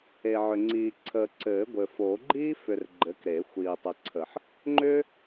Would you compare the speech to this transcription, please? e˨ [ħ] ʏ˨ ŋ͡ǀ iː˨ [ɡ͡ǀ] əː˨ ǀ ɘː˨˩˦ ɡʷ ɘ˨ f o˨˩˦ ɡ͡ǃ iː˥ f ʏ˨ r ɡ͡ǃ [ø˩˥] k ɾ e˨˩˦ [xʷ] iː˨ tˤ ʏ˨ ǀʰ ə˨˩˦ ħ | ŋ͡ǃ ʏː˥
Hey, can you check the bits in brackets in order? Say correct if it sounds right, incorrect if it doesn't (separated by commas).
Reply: incorrect, incorrect, incorrect, correct